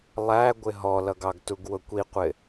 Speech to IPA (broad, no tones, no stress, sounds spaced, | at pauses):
lˠ æ ɡʷ ɪ ɦ ɔ l ʌ ɡ ɑ ɡ t u ɡ w ʊ kʷ i qʷ ɪ